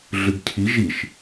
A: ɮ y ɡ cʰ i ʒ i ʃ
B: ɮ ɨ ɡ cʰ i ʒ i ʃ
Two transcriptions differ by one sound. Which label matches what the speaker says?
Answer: B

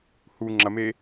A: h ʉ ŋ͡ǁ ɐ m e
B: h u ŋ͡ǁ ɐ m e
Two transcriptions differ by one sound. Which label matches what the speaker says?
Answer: B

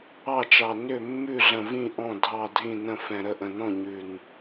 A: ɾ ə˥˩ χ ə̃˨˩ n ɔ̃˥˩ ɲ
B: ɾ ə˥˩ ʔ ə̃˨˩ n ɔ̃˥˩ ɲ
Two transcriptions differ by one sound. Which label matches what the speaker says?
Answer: B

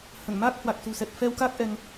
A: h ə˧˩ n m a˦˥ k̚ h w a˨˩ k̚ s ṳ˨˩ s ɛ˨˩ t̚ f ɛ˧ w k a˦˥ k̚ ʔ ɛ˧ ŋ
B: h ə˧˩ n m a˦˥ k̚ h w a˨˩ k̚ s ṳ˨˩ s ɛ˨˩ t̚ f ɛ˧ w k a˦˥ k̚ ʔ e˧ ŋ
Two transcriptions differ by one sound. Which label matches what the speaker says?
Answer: A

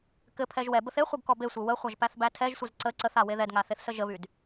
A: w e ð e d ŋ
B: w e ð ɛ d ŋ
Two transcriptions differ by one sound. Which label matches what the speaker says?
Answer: B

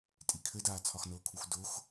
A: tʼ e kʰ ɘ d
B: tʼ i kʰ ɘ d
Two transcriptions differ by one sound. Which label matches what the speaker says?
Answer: B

